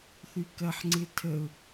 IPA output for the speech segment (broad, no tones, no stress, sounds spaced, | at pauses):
θ y k ɐ ħ ŋ͡ǀ ɪ tʰ ə ʊ̯